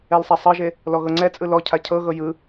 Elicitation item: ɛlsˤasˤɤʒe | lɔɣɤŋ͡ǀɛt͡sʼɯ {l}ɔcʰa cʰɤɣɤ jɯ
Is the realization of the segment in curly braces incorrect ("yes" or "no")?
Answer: no